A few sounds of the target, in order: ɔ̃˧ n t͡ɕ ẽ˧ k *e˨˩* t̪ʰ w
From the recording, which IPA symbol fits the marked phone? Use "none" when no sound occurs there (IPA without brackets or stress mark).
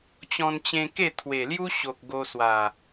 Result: e˥˧